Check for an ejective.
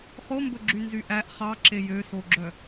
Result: absent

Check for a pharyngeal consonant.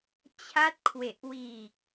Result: absent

